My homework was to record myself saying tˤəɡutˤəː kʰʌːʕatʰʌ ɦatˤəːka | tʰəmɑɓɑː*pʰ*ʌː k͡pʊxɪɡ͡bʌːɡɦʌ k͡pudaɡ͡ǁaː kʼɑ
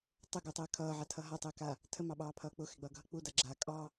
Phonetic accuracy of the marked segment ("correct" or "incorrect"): correct